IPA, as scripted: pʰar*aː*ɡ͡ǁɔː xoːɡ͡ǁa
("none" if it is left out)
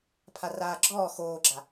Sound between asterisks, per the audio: aː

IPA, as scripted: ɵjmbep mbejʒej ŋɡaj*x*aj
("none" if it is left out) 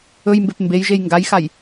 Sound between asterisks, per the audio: x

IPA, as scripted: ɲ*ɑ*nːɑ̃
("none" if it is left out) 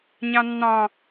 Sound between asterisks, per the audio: ɑ̃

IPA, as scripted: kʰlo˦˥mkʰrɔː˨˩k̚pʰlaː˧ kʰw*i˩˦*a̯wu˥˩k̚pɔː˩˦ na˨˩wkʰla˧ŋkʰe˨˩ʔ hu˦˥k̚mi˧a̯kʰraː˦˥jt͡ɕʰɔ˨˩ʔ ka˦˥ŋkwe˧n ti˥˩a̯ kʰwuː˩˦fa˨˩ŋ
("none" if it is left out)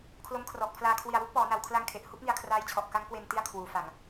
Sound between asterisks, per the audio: i˨˩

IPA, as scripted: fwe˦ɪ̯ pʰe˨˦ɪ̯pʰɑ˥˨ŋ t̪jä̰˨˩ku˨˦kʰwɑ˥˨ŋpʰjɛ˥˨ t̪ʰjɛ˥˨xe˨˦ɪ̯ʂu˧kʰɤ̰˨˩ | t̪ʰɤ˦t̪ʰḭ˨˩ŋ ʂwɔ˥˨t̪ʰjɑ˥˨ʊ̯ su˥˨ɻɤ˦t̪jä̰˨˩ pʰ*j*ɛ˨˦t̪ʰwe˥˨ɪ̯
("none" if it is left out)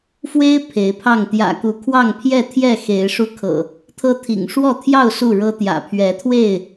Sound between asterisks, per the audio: ɥ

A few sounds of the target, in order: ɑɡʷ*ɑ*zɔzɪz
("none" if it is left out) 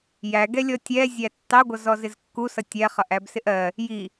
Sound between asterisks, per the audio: ʌ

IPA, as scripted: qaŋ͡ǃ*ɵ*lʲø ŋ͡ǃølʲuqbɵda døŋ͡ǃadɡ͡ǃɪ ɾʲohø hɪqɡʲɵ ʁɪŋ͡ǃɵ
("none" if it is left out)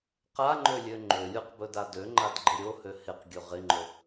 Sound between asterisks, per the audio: ø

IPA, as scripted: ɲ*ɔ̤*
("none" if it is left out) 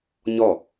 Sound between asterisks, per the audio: ɔ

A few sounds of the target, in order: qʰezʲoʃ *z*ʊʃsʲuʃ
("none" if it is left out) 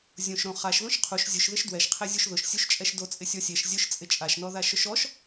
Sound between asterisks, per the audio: ð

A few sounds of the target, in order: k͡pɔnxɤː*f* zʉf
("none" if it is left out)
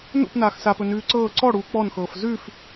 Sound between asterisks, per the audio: f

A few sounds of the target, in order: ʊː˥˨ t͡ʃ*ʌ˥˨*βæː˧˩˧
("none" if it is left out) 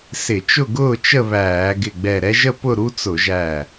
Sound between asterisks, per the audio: ə˥˨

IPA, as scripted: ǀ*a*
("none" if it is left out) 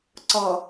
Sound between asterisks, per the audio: ʌ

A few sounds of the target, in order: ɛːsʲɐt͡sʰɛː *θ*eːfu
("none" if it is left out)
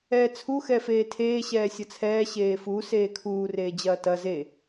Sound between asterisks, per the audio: ɕ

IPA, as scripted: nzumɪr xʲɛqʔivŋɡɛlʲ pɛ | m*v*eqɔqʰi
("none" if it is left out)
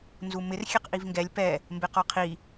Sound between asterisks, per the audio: b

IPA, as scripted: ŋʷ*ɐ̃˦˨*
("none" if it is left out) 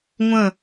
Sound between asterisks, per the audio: ɐ̃˦˨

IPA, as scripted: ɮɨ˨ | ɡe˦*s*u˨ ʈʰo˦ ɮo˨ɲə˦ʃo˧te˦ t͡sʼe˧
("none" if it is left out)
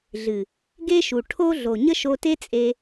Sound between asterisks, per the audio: ʃ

